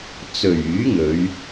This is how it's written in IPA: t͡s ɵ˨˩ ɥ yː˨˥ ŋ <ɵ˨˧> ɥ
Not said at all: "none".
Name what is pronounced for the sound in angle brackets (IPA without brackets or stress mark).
ɵ˨˧